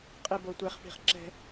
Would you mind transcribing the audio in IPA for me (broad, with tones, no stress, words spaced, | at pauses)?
qʼe˥ bo˧tʷe˧χ pi̤˥˧χǁɛ̤˥